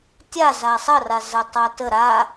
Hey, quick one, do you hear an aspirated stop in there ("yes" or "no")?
no